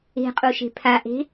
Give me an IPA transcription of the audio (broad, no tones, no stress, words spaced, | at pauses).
e̤qʼuʃe̤ pʰaʔe̤